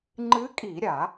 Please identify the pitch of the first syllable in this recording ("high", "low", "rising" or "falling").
rising